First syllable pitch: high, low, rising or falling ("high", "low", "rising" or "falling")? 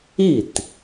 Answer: falling